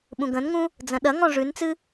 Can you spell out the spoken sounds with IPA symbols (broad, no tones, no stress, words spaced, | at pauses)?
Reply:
ɓũɡə̃nŋũ | d͡zə̃ɗɐŋɔ̃ ʐʉnt͡sɨ